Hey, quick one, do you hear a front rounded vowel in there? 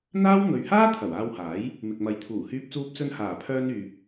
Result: yes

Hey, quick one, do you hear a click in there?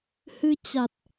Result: no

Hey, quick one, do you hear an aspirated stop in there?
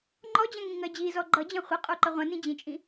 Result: no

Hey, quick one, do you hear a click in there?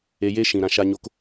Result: no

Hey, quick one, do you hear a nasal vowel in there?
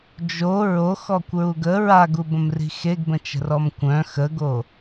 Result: yes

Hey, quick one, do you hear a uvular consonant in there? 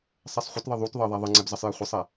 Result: yes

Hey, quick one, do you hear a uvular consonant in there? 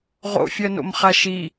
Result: yes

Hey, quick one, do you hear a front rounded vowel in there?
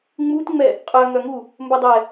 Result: yes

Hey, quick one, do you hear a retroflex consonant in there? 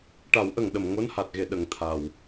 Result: yes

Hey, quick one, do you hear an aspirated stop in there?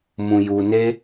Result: no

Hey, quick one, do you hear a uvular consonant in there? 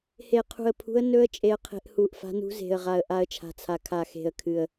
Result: yes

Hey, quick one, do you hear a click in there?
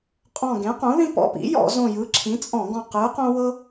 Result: yes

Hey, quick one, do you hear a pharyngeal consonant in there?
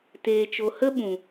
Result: no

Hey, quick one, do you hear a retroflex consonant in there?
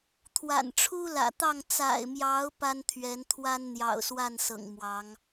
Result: yes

